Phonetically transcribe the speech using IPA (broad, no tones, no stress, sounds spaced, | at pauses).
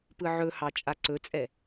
p ɯ ʕ ɵ h ɑ t͡ʃʼ a ǀ ɵ t͡sʼ ɛ